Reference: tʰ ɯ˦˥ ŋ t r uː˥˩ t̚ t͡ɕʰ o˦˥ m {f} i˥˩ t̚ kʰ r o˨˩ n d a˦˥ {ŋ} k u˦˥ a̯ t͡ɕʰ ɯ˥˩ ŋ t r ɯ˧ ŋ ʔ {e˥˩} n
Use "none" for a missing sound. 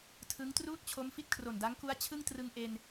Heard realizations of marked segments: f, ŋ, e˧

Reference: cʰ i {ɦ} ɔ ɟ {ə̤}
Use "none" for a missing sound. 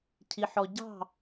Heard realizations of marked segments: ħ, ɑ̤

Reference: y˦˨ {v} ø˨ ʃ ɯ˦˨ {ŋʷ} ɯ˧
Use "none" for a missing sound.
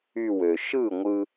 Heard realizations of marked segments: w, ŋʷ

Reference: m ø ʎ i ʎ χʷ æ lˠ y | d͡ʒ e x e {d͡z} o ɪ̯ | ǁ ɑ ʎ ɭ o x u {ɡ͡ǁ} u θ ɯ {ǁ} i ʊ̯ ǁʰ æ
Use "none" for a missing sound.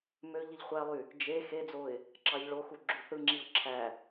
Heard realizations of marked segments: d͡z, ɡ͡ǁ, ŋ͡ǁ

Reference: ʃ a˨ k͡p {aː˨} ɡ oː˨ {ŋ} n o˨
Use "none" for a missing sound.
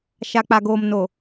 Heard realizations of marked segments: a˨, m

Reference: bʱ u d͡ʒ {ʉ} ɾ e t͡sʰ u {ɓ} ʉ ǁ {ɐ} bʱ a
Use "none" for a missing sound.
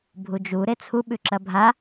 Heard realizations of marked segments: u, ɓ, ɐ

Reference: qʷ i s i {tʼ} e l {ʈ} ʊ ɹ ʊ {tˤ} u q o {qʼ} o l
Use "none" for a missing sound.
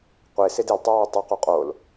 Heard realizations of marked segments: d, tˤ, tˤ, qʼ

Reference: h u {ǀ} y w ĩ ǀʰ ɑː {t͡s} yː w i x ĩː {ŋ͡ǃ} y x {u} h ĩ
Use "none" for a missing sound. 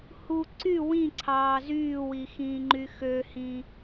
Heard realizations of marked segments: ǀ, z, ŋ͡ǃ, ø

